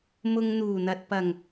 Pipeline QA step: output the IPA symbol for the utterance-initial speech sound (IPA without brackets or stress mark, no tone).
m